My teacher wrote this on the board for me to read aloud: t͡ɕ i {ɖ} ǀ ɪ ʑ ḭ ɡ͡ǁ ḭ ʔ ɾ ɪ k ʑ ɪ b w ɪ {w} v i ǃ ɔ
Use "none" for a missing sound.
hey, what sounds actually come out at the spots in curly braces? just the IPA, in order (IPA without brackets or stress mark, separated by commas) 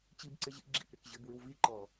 b, w